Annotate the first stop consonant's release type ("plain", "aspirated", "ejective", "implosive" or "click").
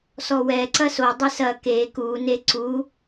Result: click